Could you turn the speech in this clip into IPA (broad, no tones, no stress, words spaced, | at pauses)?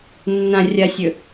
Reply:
nːã rʲasʲɵ